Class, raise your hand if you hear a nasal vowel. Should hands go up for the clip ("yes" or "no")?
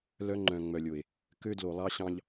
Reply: yes